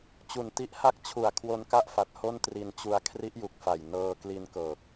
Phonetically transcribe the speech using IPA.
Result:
t͡ɕ u˨˩ n t i˦˥ ʔ h a˥˩ k̚ t͡ɕʰ u˨˩ a̯ kʰ w o˧ n k a˥˩ ʔ f a˨˩ t̚ h o˥˩ n t r i˧ n t͡ɕ u˧ a̯ kʰ r i˦˥ ʔ j u˨˩ k̚ f a˨˩ j n ɤː˧ k l i˧ n k ɤː˨˩ k̚

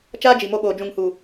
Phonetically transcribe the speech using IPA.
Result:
t͡ʃ aː˦ d͡ʒ i˨ m o˧ ɓ oː˨ d͡ʒ ũ˨ ŋ h u˨

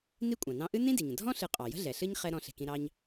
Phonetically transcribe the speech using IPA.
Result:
n i˥ kʷʼ ɑ̃˩ n ɑ̃˦ ʔ ɨ˥ n ĩ˥ d i˩ ɲ ə̃˩ dʱ ɔ̃˥ ɬ ɨ˨ qʼ ɑ˩ j ə̤˥ ɮ ɛ˩ ɬ ɨ˥ ɲ χ ɛ˦ ɾ ɔ̃˦ ɬ e̤˨ k ĩ˦ ɾ ɑ˥ ɲ

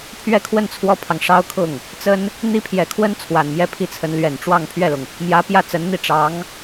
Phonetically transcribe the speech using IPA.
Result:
pʰ ɥ ɛ˥˧ kʰ w ə˥˩ n t͡sʰ w ɔ˥ pʰ ɑ˨ ŋ ʂ ɑ˥ ʊ̯ kʰ ʊ˥˩ ŋ | t͡s ə˥ n | n̪ i˥ pʰ j ɛ˨˩ kʰ w ə˥ n t͡sʰ w a˨˩ n m j ɛ˥˧ pʰ i˥˩ t͡sʰ ə˧˥ n l ɥ ɛ˨˩ n ʈ͡ʂ w ɑ˥˧ ŋ pʰ ɥ ɛ˥˩ l ʊ˩ ŋ | m j ä˧˥ p j ä˥˩ t͡s ə˧˥ n n̪ i˥˩ ʈ͡ʂ ɑ˧˥ ŋ

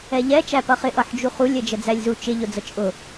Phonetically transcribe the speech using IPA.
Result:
ɛ ʎ ɛ t͡ʃ æ p ʌ χ ɪ ʔ ʌ ħ d͡ʒ u χ u lʲ ɛ d͡ʒ ə d͡z æ lʲ z u t͡ʃ ɪ ʎ ʊ d͡z ə t͡ʃʼ ʊ

